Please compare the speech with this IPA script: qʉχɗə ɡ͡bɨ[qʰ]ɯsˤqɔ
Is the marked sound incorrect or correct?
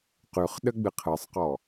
correct